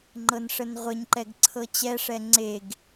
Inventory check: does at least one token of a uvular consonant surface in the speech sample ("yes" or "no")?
yes